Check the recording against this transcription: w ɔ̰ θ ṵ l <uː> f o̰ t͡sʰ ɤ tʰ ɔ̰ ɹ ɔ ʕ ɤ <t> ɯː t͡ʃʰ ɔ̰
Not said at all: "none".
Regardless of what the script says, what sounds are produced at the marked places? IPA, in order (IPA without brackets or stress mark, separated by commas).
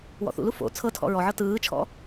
u, t